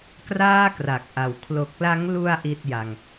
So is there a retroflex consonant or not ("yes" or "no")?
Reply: no